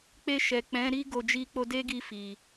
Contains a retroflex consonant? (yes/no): no